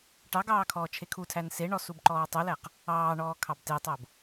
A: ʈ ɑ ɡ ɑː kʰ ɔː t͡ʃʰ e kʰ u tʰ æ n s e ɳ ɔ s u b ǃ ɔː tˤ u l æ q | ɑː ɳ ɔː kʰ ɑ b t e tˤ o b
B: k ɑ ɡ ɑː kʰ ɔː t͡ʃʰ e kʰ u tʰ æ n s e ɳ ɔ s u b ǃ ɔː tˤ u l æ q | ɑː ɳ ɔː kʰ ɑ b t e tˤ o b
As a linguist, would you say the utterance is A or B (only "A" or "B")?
A